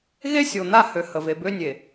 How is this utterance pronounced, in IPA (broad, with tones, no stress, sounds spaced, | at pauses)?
ɣ e˦ sʲ o˨ n̪ a˦˨ h ø˨ h ə˨ v e˨ b ø˦ nʲ e˨